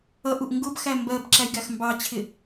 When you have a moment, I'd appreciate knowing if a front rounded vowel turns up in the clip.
no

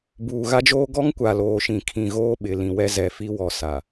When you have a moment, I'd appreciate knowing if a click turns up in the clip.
no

